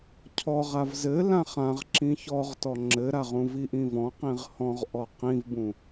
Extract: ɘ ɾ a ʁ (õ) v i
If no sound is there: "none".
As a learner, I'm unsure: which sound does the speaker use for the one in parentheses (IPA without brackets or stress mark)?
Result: ũ